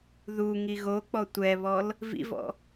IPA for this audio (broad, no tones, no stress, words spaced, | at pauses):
ðu ŋiɣok͡pɔ tʷɛβɔl | vḭvɔ̰